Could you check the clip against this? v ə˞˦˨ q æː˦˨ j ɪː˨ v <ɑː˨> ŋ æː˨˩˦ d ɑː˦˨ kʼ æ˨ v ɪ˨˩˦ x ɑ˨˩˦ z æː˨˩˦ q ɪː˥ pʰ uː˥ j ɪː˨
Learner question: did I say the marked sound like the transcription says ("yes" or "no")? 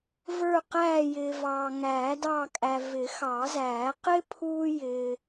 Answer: yes